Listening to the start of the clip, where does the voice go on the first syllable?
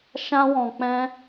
high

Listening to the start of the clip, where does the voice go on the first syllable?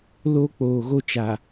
high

